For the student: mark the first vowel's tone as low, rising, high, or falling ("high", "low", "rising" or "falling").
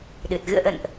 low